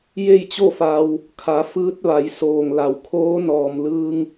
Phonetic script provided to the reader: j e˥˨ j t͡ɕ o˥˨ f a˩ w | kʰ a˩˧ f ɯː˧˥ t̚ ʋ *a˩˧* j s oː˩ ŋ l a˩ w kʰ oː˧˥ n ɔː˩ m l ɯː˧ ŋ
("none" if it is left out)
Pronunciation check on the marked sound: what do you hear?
a˩˧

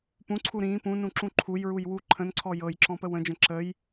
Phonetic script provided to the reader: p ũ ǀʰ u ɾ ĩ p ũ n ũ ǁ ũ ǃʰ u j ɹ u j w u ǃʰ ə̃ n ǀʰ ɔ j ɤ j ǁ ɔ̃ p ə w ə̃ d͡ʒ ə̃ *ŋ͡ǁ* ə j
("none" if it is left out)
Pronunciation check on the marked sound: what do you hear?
ǁ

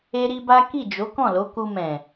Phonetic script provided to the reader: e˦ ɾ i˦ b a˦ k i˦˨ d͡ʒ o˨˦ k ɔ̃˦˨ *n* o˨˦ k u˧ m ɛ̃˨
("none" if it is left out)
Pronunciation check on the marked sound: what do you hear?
l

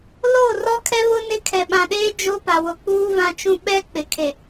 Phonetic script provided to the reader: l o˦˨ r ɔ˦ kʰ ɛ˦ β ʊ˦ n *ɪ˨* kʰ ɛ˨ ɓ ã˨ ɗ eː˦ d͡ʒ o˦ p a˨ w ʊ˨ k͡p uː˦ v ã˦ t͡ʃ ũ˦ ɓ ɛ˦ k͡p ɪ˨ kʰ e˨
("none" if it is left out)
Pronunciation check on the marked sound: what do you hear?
ɪ˦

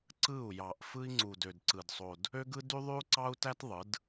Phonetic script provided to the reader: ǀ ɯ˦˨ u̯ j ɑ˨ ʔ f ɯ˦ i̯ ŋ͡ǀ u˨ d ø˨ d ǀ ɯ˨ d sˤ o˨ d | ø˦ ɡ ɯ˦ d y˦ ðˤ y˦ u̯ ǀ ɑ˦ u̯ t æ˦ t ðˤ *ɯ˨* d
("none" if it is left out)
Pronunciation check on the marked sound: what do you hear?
ɯ˨˦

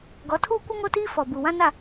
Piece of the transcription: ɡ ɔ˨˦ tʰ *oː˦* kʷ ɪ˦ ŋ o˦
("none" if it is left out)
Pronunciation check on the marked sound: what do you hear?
uː˦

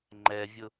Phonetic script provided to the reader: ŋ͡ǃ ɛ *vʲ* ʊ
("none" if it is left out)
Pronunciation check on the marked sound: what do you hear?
vʲ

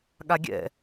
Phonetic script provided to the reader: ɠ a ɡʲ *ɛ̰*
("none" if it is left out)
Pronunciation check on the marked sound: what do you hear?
ɛ̰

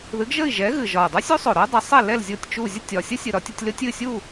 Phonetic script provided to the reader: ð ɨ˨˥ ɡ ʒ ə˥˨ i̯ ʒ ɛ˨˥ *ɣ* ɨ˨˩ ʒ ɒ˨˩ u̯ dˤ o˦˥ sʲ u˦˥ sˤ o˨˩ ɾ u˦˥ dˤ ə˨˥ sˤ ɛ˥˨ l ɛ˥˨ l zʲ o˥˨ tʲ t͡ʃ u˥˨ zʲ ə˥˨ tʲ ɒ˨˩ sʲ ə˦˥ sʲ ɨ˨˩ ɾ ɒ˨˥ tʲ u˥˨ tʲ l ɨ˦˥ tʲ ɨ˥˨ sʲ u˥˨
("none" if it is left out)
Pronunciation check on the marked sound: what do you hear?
ɣ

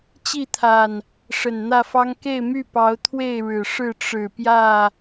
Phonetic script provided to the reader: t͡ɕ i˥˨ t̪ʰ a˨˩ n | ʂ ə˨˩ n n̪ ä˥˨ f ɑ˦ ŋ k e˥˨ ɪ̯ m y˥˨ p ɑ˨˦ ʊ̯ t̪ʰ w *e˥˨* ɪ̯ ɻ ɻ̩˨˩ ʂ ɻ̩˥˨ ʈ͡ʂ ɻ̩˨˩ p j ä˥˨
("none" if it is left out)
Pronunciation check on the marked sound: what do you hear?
e˥˨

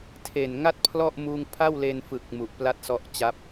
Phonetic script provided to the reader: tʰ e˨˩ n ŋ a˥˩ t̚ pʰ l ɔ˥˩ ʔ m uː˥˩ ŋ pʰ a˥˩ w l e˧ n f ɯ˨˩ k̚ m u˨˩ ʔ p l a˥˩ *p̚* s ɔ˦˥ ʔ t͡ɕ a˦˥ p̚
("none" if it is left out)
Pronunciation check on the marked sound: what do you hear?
t̚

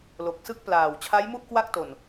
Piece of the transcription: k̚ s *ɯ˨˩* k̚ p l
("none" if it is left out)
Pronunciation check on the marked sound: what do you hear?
ɯ˥˩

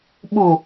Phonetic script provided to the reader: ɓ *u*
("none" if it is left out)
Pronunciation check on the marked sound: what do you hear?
u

